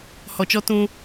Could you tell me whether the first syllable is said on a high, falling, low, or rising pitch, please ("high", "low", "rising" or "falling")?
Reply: low